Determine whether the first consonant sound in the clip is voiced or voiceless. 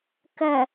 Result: voiceless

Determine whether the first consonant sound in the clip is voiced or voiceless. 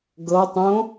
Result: voiced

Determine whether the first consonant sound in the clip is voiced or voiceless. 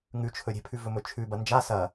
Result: voiced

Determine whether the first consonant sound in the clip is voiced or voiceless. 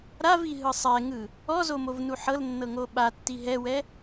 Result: voiced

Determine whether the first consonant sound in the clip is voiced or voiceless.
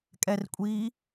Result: voiceless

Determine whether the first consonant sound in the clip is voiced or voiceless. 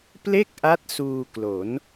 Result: voiceless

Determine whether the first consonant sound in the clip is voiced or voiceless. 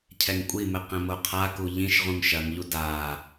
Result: voiceless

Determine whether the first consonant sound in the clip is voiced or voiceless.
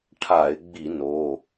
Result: voiceless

